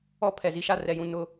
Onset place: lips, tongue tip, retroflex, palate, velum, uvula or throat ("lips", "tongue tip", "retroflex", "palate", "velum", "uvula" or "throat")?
lips